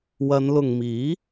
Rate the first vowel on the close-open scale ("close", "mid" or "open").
open